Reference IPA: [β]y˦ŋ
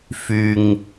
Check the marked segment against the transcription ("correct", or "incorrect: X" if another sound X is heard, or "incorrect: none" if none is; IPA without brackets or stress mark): incorrect: f